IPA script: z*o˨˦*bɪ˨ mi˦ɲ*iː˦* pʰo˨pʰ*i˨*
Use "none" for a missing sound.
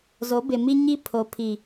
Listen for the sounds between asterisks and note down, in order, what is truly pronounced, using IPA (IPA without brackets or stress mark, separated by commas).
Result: o˨˦, i˦, i˨